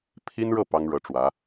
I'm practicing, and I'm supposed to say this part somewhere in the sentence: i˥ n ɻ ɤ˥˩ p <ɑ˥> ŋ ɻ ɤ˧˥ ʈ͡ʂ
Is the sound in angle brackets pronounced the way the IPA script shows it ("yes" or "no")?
yes